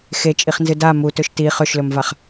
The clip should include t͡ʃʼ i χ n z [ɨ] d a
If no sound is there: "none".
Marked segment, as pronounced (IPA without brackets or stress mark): ɨ